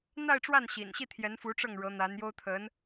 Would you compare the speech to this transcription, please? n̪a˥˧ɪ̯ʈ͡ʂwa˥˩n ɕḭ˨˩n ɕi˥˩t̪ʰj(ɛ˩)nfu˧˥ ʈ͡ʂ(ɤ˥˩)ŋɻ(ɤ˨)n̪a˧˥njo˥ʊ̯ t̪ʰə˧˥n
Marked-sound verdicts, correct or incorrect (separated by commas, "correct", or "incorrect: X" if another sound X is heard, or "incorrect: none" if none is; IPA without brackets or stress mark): incorrect: ɛ˧˥, correct, incorrect: ɤ˧˥